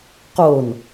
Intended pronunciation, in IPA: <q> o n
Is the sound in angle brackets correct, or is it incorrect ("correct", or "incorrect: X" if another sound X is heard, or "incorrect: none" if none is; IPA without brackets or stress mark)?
correct